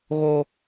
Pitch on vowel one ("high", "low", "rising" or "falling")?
high